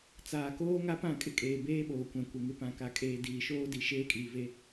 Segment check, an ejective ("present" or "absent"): present